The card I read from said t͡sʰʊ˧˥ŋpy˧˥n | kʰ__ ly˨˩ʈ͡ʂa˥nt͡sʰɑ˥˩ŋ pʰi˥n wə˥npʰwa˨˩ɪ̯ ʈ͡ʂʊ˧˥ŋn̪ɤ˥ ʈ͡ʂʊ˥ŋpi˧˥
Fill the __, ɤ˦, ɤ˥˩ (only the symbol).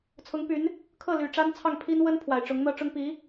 ɤ˥˩